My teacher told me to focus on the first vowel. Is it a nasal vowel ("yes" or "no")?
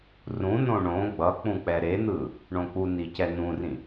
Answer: yes